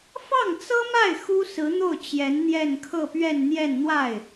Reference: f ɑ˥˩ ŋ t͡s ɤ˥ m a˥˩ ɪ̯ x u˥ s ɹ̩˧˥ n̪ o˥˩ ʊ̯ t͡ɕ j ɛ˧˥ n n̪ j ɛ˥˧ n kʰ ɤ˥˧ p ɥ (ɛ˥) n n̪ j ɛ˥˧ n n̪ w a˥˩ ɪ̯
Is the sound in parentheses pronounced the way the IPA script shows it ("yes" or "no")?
no